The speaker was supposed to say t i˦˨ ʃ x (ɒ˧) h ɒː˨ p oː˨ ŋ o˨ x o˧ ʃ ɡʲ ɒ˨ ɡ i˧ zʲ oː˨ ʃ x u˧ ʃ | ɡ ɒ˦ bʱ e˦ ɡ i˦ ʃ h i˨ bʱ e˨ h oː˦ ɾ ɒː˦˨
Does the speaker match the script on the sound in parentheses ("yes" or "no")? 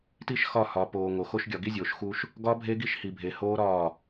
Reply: no